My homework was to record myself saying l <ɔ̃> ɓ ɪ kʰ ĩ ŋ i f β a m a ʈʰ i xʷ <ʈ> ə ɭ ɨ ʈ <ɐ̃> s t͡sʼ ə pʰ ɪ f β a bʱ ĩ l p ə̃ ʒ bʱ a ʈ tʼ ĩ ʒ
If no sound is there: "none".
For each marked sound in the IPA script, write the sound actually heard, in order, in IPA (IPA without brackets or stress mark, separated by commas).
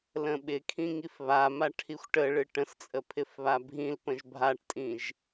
ə̃, ʈ, ə̃